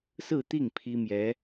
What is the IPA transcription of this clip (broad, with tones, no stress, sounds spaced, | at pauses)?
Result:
s ɹ̩˥˧ t̪ i˥˩ ŋ pʰ i˥ m j ɛ˧˥